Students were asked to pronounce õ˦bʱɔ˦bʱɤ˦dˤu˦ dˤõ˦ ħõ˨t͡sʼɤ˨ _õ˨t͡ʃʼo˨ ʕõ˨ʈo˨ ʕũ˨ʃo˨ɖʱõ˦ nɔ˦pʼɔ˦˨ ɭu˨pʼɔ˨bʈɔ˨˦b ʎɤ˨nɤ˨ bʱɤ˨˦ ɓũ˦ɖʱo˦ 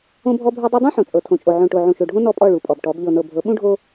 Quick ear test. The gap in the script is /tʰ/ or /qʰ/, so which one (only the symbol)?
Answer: tʰ